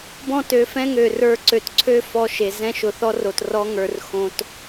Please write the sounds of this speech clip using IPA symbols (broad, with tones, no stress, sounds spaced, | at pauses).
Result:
b ɔ̃˦˨ t ø˨˦ f ɛ̃˦ ŋ ø˨ r ə˞˦˨ ǀ ø˨ t ǀʰ ø˦ f ɔ˦ ʃ e˨ z ɛ̃˦ ʃ ʊ˨ θ ɔ˦ r o˨ t r ɔ˦ ŋ ə˞˨ r x õ˦ t